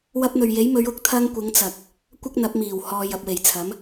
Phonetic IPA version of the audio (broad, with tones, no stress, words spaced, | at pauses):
wɐ˧p̚n̪ɵ˨ɥje˨˥jmɵ˨˧ɥ ʊ˧k̚t̪ʰɐ˧ŋkʷɪ˨˧ŋ t͡sɐ˨k̚ | kʷɐ˥k̚ n̪ɐ˨˥p̚miː˨˩w hɔː˨jɐ˨p̚we˨˩jt͡sʰɐ˨˥m